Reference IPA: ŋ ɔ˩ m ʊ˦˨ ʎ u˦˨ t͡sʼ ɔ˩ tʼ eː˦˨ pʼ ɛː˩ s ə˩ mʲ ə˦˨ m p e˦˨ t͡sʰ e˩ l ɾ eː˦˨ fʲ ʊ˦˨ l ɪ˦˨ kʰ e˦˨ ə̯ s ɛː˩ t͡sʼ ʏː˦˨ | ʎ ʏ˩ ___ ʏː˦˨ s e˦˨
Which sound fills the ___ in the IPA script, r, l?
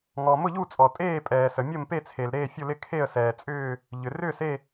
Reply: r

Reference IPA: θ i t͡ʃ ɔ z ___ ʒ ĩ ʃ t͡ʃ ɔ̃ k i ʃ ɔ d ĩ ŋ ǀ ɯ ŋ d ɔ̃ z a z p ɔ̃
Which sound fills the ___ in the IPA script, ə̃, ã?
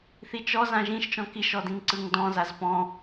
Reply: ã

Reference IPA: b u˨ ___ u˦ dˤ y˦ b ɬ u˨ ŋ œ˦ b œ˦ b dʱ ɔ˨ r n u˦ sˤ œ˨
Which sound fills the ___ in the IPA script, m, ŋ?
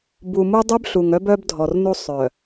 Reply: m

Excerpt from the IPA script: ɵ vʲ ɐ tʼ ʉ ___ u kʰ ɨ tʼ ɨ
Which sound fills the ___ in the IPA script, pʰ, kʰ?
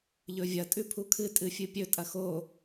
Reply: pʰ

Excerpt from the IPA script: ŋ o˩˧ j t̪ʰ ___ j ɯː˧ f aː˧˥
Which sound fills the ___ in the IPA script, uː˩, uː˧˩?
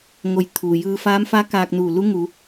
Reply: uː˩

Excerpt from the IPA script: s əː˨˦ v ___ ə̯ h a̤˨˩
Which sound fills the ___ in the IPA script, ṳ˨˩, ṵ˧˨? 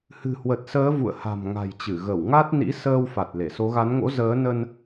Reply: ṵ˧˨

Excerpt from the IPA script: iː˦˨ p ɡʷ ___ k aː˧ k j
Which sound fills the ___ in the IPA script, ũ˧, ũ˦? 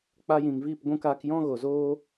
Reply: ũ˧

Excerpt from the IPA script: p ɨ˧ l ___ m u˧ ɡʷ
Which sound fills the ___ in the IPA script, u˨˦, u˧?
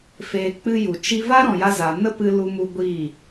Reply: u˧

